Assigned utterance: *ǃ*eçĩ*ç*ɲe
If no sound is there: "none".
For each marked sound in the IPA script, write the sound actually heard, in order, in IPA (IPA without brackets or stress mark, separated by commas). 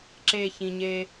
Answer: ǁ, none